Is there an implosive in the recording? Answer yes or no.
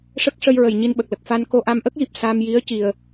yes